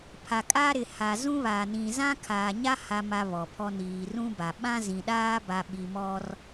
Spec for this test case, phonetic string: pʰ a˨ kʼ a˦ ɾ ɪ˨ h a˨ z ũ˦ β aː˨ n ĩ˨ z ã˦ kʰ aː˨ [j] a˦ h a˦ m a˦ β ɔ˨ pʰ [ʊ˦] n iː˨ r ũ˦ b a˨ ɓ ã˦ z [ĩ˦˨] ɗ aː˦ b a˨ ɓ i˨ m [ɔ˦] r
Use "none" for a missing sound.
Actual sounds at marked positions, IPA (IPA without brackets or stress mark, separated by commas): ɲ, ɔ˦, ĩ˨, ɔ˦